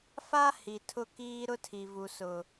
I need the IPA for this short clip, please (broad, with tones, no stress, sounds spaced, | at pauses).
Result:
f a˦ h i˨ tʰ ʊ˦ k iː˦ ɾ ʊ˦ tʰ i˨ v u˨ s ʊ˨